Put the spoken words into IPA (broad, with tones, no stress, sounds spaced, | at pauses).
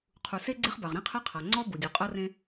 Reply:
qʰ u˩ s e˥ ɡ͡ǀ e˥ χ b a˩ ʁ ɾ ĩ˥ qʰ ɛ˥ qʰ a˩ ŋ͡ǀ ɔ˥ b u˩ dʲ u˩ qʼ ɤ˥ r ẽ˥